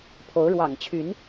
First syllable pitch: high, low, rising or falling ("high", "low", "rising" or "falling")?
rising